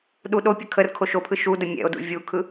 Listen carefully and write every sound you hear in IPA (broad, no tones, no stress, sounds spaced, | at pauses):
ɗ u ɗ o pʲ ə kʰ ə r kʰ o ʃ o pʰ ɯ ʃ u d ə mʲ ɛ̰ o̯ d ṵ vʲ u kʰ ɯ